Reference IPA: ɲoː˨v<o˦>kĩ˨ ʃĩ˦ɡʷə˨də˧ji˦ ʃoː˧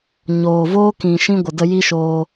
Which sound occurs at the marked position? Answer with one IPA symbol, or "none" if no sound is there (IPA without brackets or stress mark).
oː˦